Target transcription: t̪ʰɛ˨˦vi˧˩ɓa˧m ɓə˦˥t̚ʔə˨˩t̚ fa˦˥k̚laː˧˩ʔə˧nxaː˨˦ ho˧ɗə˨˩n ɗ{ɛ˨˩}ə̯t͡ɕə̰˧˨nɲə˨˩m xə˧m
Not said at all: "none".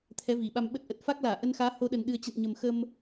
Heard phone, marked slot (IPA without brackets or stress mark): ɨ˨˩